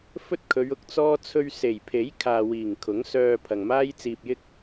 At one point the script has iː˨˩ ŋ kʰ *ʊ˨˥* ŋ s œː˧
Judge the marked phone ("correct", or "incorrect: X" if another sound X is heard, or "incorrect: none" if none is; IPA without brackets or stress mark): correct